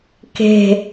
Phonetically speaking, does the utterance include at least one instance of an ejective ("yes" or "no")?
no